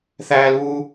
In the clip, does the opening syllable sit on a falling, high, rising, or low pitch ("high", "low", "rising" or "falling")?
high